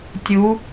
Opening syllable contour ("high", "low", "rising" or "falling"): rising